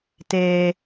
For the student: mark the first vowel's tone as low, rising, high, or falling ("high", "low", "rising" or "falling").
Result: high